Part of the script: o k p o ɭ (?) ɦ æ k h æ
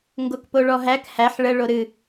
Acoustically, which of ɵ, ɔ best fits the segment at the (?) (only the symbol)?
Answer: ɔ